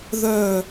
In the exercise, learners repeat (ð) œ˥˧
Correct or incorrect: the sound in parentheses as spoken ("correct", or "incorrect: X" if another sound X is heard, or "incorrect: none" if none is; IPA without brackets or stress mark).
correct